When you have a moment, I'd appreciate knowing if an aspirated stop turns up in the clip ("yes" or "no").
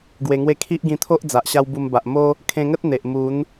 yes